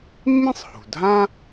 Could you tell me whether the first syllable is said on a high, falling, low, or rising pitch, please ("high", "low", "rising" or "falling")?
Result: high